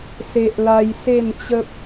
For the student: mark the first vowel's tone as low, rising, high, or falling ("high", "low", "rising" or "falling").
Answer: high